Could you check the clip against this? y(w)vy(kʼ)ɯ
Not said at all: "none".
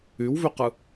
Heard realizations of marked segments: w, q

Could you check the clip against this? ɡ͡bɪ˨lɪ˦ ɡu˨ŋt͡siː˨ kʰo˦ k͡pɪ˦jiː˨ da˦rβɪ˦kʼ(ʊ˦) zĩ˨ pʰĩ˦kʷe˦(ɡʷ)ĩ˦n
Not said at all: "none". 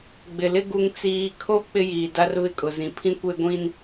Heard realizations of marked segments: ʊ˨, ɡʷ

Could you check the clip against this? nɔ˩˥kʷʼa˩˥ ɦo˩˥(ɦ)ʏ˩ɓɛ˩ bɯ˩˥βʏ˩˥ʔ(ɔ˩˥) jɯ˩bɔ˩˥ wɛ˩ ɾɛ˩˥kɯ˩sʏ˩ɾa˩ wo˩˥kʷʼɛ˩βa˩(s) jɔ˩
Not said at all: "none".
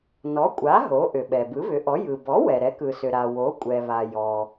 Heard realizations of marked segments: ʔ, ɔ˩˥, none

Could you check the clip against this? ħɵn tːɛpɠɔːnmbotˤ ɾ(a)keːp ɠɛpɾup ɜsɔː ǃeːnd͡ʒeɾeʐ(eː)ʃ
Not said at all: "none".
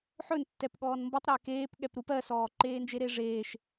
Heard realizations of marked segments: æ, eː

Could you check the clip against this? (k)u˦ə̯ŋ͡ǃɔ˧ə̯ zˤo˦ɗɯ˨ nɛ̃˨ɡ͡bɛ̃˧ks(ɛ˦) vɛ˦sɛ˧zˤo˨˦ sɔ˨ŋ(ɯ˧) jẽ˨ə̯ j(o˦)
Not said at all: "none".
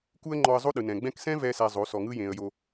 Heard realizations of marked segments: k, ɛ̃˦, ɯ˧, o˨

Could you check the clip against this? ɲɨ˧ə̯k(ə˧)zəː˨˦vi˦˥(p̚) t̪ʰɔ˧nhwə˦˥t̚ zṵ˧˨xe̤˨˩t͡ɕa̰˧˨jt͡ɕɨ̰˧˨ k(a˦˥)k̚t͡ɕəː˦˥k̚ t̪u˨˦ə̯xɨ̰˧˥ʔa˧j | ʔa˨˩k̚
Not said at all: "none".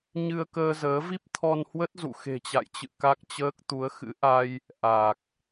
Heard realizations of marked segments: əː˧, p̚, a˦˥

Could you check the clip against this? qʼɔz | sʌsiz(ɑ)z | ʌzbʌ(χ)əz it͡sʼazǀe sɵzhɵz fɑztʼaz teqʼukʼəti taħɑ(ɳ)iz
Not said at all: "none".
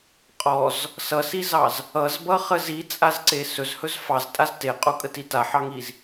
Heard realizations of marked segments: ɑ, χ, ŋ

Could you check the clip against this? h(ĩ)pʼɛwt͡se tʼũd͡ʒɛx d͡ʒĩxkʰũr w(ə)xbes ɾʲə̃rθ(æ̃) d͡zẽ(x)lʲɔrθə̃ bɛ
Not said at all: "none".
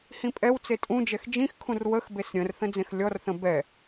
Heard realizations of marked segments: ĩ, ə, ə̃, x

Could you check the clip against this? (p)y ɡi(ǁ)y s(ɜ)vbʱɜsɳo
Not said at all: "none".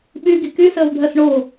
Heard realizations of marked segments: ɓ, k, ɜ

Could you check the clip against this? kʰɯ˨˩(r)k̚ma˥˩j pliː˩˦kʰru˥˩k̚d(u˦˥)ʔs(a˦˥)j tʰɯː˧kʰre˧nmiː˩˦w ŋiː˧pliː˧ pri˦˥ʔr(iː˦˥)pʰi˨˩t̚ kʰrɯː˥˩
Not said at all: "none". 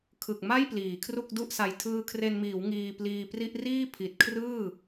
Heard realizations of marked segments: none, u˥˩, a˧, iː˥˩

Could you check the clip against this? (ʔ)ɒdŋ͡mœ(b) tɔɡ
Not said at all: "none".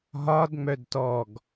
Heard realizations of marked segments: ɦ, d

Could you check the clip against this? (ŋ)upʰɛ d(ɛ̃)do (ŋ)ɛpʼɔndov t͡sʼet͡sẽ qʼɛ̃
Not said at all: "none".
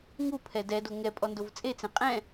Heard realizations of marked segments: ŋ, ɛ, ŋ

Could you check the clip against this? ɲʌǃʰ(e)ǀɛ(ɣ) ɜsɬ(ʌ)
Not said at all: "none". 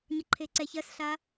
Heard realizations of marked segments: e, ç, a

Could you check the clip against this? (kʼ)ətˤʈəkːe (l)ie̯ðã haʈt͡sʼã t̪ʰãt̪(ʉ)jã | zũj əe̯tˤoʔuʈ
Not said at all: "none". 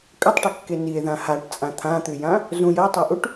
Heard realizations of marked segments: kʼ, n, ʉ

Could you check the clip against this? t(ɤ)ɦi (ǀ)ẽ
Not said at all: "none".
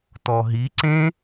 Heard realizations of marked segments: ɔ, ǀ

